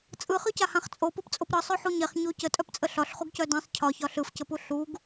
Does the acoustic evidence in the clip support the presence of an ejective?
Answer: yes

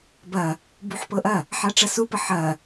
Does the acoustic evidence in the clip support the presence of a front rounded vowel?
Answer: no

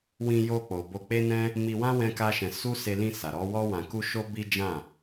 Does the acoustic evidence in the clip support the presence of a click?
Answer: no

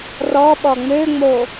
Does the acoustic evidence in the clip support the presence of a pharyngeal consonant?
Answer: no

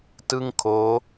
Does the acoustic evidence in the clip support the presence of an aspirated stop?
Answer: yes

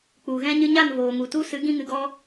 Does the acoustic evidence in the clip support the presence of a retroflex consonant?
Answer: no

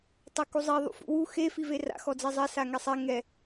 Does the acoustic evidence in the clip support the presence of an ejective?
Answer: no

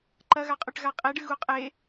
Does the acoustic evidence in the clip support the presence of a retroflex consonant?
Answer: yes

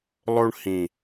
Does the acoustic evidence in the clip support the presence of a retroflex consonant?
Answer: yes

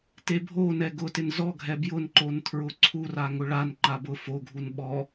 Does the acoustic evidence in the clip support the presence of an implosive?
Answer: yes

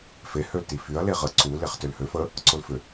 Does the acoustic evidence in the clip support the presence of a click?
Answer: yes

